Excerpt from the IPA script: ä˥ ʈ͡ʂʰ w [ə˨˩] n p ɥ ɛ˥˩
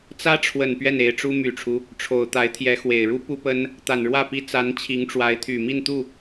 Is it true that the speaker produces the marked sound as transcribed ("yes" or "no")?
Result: yes